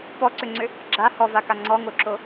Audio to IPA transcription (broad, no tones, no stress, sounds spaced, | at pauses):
p ɔ ǀ ʏ ŋ͡ǀ ʏ | ɡ͡ǁ a h ɔ v a k a ŋ͡ǀ ɔ ŋ o ǁ o